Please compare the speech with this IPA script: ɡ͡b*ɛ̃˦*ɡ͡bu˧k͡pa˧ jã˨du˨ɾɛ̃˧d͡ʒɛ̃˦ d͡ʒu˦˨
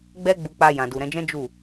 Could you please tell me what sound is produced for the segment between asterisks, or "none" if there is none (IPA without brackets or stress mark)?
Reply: ɛ˦